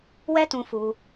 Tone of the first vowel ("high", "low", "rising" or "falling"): high